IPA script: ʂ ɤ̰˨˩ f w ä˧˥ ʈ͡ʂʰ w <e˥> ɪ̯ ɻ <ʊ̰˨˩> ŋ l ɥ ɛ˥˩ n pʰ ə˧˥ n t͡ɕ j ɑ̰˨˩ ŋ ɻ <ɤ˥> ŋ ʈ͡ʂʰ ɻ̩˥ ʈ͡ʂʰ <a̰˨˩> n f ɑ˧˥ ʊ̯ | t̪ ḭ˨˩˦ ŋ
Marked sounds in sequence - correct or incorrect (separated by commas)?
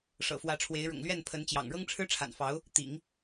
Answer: incorrect, correct, correct, correct